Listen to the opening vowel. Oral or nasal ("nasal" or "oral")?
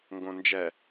nasal